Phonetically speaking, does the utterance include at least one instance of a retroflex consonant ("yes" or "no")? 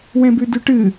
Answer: yes